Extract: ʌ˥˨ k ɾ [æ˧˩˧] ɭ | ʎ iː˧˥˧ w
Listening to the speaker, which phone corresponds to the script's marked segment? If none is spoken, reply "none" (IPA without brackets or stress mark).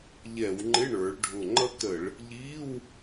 ə˧˩˧